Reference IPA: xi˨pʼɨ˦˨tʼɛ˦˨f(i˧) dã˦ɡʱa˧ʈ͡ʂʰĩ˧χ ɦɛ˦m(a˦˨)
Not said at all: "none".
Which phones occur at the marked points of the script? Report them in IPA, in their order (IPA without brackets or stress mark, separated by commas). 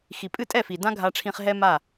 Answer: i˨, a˦˨